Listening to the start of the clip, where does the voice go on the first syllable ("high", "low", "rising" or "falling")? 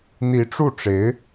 rising